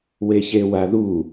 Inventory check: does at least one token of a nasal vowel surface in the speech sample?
no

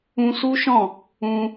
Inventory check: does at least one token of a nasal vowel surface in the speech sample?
yes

